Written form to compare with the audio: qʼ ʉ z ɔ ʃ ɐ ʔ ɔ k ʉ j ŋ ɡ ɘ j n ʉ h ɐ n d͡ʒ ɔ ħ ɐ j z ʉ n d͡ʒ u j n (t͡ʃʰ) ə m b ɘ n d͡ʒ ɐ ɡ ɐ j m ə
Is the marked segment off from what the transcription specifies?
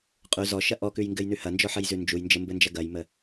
yes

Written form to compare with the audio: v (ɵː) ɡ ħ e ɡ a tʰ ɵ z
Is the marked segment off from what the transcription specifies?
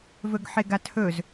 yes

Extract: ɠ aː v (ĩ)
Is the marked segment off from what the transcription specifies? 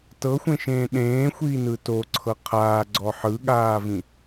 no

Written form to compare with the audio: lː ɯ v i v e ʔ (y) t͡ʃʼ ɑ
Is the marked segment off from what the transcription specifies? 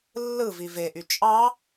no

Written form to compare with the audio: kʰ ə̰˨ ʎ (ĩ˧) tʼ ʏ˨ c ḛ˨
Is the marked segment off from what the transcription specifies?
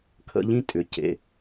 no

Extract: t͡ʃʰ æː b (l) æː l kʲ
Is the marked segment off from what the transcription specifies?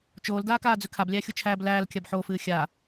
no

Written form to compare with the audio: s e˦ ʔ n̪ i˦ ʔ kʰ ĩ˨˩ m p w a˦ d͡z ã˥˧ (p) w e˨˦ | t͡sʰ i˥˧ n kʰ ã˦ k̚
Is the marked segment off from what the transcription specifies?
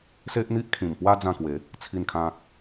yes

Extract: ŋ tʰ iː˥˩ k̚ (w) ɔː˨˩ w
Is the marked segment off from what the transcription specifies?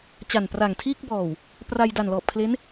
yes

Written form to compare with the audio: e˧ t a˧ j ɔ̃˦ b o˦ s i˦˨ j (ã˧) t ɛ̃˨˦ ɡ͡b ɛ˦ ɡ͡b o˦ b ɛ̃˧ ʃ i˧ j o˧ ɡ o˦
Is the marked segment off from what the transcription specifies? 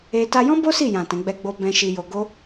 yes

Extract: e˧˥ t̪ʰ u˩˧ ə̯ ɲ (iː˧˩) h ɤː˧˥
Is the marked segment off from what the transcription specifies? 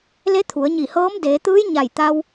yes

